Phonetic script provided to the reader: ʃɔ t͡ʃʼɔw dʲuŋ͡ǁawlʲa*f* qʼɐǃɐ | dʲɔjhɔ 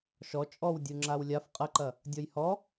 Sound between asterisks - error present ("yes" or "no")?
no